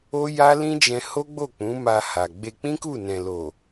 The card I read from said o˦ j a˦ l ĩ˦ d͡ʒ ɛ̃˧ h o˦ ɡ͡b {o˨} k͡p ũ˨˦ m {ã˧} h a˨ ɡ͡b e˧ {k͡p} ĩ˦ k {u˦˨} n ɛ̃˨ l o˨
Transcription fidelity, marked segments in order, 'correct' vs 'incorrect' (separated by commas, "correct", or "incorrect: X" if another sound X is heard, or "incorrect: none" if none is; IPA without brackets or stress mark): incorrect: o˦˨, incorrect: a˧, correct, correct